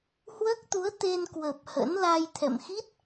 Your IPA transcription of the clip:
hwəː˦˥k̚t̪u˨˦ə̯ t̪e˧n kwə˨˩p̚ hə̰˧˥n la˧jt̪ʰɛ̰˧˨m xi˦˥t̚

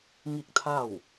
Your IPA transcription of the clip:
ŋi˥˨k̚t̪ʰa˥˨w

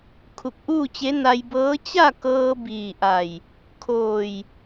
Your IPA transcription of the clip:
kʰu˧˩k̚ʔuː˥˨t͡ɕe˧˥ na˧jbɤː˧˥ t͡ɕa˥˨kɤː˧ biː˧˩ʔa˧˩j | kʰoː˧˩j

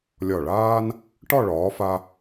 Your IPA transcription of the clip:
lʲɒ˧˩ɭaː˥n | ʈɒ˥˧ɭɒː˩˧fa˧

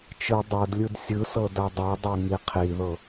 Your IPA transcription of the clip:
t͡ʃɯ dˤɤdlʲɯd sʲɯsɤ dadˤɛdˤɛ ŋiqʰiðɤ

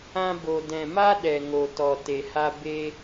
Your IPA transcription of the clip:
ã˧bo˨ dɛ̃˨ma˦ ɗɛ˨ŋo˨ tɔ˨te˨ha˦ be˧

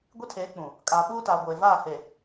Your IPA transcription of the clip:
ɡʷi˦tʰeː˨˦k͡pũ˨ | kʼaː˨ɓuː˦taː˨ ɡʷeː˨vaː˦˨he˨

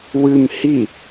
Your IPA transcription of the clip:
wɨm hi

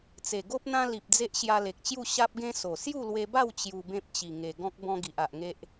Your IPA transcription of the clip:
t͡se˨˩ɡo˦p̚ n̪ã˦li˨p̚ d͡ze˦ʔɕja˧le˨k̚t͡ɕju˥˧ ɕa˦p̚ɡẽ˦ so˨˩ sju˥˧lwe˧ba˥˧w t͡ɕju˧bẽ˦p̚ t͡ɕi˨˩ŋe˨˩ɡɔ̃˦k̚ bɔ̃˦ɡi˨ʔa˨ʔŋe˦ʔ

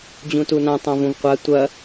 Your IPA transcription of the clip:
d͡ʑũtunã tˤãvũvqʷa tʷɐ

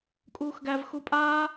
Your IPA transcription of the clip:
kʼuːxɡæv xupʼaː

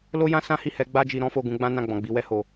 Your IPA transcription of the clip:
lo˦jã˦ sã˦hi˦˨hɛ˨˦ ɡ͡ba˦d͡ʒi˧ɾɔ̃˦fo˦˨ ɡũ˧ɡ͡bã˦ nã˦˨ɡ͡bɔ̃˨ɡ͡bi˨˦ wɛ˧ho˨

